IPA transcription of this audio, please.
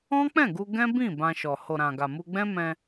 ɔ̃˦ k͡p ɛ̃˦˨ ɡ u˧ ɡ ɛ̃˦ b ĩ˦˨ b ã˧ ʃ ɔ˨ h o˨ ɾ ã˨ ɡ a˨ m u˧ ɡ͡b ɛ̃˦ m ɛ̃˧

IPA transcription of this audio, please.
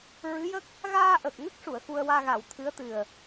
ɹ ɨ˧˥ j ə˦˥ k̚ | ɣ aː˧ ʔ ə˨˩ k̚ ŋ ə˦˥ k̚ ʂ u˨˩˨ ə̯ x u˧ ə̯ w aː˧ ɣ a˨˩˨ w t̪ʰ ɨ˧˥ ə̯ t̪ ɨ˨˩ ə̯

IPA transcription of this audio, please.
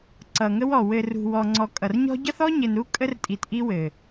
ǀ ʌ˨ ŋ ə˦ w ɔ˨ w ɘ˨ r ṳ˨ w ɔ˨ ŋ͡ǀ ɔ˨ kʼ ʌ˨ r ɲ ɔ̤˦ ɟ ʌ˦ θ ɔ˦ ɲ ɘ˨ n ɾ u˦ kʼ ə˦ r tʼ i˨ t ʔ i˦ w ɘ˨

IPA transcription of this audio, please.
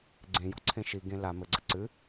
ɡ͡ǀ ẽ j ɔ̤ ǀʰ ẽ ʃ i ɡ ẽ l a m ɘ ɡ͡ǀ ɐ ǀ ɨ

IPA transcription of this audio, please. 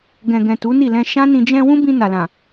ɡ ɛ̃˨ ɡ ɛ̃˨ t u˨˦ n i˦˨ l ɛ̃˧ ʃ ã˦ n ĩ˧ d͡ʒ ɛ̃˧ w ũ˦ b ĩ˧ n a˨ l ã˨

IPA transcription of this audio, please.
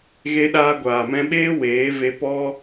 ɣ e˦ ɗ aː˧ ɡʷ aː˨ m ɛ̃˧ ɓ eː˦ w eː˨˦ v e˧ p ɔ˦

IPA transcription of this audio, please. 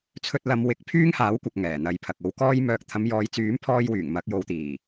t͡sʰ ɵ˧ t̚ l ɐ˨˧ m w ɪ˨˥ k̚ pʰ yː˥ ŋ h aː˨˥ w kʷ ɐ˨ k̚ ŋ ɛː˨˩ n̪ ɐ˨ j pʰ ɐ˨ k̚ o˨˧ w k ɔː˥ j m œː˧ k̚ t̪ʰ ɐ˨˧ m j ɔː˨˧ j t͡s yː˨˥ m pʰ ɔː˧ j w yː˨˩ ŋ m ɐ˨˥ k̚ j o˨˧ w t̪ iː˨˩

